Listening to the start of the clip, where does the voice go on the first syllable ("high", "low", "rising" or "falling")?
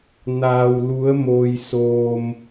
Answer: low